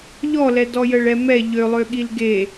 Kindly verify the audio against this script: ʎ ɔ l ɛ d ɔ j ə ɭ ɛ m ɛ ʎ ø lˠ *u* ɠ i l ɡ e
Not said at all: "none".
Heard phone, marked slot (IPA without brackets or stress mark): ø